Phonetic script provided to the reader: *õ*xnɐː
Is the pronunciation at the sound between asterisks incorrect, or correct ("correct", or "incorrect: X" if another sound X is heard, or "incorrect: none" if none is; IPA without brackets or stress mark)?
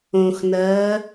correct